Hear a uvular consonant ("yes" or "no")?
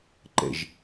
no